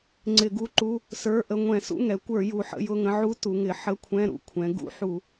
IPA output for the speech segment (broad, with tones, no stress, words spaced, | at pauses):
ŋ͡ǀɪ˧˩˧ɡu˧˥ǃu˧˥˧ | sə˞˧˥˧ʔə˧˥˧ ŋʷɛ̃˧˩˧sṵ˧˥˧ŋɛ˩˧kʷə˞˧˩˧ ju˩˧ħə̰˧˥˧jʊ˧˥˧ŋə̃˧˥ ʕu˧˥ tu˩˧ŋɪ˩˧ ħə˧˥˧kʷʰɛ̃˧˥˧ɾṵ˧˥ kʷʰɛ̃˩˧ ɡṵ˧˥˧ ħu˧˩˧